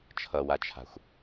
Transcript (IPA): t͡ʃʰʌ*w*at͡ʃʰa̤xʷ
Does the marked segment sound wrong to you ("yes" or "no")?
no